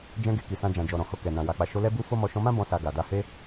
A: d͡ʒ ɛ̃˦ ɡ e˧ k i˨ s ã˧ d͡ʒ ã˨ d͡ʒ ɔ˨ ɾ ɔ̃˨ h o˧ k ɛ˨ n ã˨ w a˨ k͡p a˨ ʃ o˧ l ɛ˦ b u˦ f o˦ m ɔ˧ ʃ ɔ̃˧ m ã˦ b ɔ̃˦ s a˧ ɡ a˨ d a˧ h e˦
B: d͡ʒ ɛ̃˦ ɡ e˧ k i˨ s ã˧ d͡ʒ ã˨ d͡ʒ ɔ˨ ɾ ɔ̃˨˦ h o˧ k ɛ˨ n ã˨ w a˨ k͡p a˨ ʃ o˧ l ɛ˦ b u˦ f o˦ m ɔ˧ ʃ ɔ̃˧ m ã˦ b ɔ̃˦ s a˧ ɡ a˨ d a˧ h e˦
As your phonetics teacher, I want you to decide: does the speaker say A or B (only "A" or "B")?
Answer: A